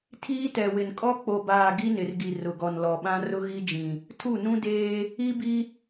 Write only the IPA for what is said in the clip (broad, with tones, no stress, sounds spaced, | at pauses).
tʰ iː˦ t ɛ˨ w ɪ˨ n kʼ ɔ˦ k͡p o˨ b aː˨ ɡ i˦ n ɪ˨ r ɡ i˨ r ʊ˨ ɡ ɔ˨ n l ɔ˨ ɓ ã˦ r ʊ˦ ɣ i˦ d͡ʒ ĩ˨ | tʰ u˦˨ n ũ˦ d eː˦ | i˦ b i˦